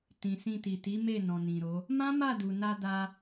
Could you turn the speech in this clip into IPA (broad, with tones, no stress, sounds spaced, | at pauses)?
t ĩ˨ s ĩ˧ t i˨ t i˨˦ m e˦˨ n ɔ̃˨ n ĩ˨ ɾ o˨˦ | m ã˦ m a˦˨ d u˨ n a˧ d a˧